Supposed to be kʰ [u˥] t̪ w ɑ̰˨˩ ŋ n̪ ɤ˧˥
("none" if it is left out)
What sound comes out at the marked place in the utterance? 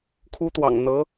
u˥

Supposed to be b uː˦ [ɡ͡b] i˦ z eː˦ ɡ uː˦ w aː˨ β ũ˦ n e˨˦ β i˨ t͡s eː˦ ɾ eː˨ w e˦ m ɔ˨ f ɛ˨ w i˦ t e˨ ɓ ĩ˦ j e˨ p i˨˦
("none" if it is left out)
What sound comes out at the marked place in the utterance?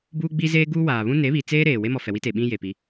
ɡ͡b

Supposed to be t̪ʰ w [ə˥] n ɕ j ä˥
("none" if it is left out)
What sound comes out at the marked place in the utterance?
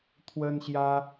ə˥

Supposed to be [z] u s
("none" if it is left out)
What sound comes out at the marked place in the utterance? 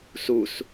s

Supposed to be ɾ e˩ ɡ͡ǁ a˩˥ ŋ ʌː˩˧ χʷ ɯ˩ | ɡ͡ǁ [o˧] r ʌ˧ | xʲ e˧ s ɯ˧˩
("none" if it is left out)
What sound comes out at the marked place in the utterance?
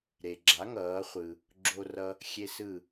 o˧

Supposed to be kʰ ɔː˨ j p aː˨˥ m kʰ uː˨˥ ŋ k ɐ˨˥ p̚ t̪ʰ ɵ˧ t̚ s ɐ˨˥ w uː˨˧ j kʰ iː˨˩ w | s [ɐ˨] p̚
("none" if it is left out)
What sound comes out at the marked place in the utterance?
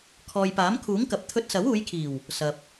ɐ˨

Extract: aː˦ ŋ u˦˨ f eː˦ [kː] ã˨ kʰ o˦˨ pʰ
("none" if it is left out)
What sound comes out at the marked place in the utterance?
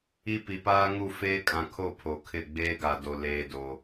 kʼ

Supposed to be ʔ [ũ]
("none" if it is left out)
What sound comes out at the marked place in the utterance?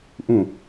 ũ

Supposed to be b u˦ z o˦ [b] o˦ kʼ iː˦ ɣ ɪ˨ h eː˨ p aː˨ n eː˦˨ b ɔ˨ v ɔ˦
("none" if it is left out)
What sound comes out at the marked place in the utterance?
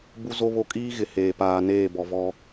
β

